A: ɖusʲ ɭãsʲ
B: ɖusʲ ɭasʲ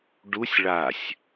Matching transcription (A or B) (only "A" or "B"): B